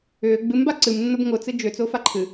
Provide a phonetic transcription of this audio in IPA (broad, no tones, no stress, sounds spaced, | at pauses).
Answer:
ʏː ɡ͡b ɨ m b a ǀ ɨ m nː ʊ b ŋ ʊ t͡s ɨ d͡ʒ ʏː t͡s ʊː f a ǃʰ ɨ